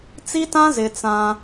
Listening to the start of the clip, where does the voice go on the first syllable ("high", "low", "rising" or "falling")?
high